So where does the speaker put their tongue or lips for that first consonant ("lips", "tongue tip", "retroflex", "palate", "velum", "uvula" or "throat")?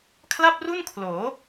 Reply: velum